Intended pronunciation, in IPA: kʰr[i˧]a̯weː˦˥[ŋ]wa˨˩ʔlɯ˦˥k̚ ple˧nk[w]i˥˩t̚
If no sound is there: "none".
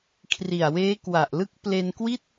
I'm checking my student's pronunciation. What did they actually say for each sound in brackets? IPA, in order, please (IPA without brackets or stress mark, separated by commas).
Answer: i˨˩, k, w